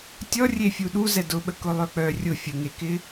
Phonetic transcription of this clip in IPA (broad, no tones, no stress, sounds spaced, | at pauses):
tʲ ɔ rʲ e fʲ u ɗ u z ɛ d ʊ ɓ ə k ʊ lˠ œ k͡p œ rʲ ʊ fʲ ə ŋ e k ɪ